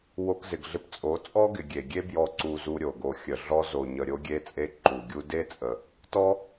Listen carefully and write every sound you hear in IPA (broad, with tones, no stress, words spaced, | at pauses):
wo˧kzɪ˨ɡɮɪ˧p t͡sʼo˨˦t͡sʼɔ˦ɡɪ˨ ɡʲe˨ɡʲe˦bjɔ˧ ǀu˧zu˧ɾʲo˨ɡo˨ xʲə˨ ɮɔ˧zo˨ɲə˨ ɾʲo˧ɡʲe˧t͡sʼe˧ ǃu˨ɡʲu˧ de˦t͡sʼə˨ | tɔ˦